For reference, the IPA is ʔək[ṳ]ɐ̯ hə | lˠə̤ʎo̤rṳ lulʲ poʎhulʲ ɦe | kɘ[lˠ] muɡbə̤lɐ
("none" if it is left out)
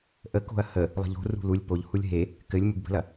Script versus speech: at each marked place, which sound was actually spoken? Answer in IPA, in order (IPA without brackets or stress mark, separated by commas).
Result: o̤, lʲ